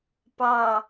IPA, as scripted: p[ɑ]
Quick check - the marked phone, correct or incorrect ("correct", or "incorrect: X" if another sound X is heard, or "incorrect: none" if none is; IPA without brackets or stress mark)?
correct